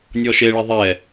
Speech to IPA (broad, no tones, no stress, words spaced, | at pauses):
nʲɔʃeɭi ðˤɛ